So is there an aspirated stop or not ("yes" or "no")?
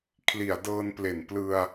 yes